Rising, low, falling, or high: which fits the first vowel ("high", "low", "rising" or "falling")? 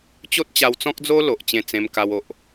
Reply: high